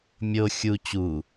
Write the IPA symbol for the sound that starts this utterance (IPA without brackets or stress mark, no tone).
mʲ